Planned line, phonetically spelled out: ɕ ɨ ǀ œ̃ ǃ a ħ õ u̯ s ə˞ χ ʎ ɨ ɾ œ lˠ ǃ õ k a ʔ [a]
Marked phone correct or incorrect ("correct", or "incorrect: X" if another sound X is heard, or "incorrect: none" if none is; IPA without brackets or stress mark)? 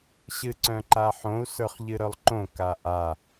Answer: correct